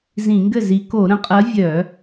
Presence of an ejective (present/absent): present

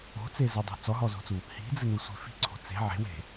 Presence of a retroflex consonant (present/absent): absent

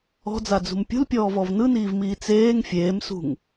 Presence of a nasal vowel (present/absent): absent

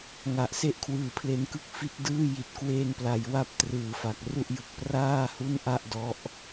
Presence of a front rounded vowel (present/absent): absent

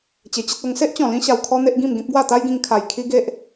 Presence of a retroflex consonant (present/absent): absent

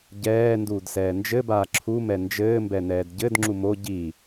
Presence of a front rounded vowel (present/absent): absent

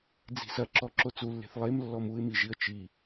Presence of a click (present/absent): present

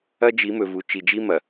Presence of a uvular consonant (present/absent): absent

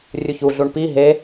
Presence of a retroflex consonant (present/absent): present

